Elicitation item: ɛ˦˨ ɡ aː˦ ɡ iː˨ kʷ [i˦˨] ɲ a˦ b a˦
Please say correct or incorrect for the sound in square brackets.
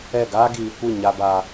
correct